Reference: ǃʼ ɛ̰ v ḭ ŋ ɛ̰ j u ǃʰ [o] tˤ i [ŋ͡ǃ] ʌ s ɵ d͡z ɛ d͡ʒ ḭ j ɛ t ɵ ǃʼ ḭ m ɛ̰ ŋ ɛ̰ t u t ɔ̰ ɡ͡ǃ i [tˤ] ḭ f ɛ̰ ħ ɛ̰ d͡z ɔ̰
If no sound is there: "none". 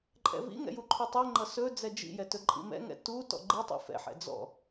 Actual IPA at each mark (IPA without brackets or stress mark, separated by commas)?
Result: ɵ, ŋ͡ǃ, tˤ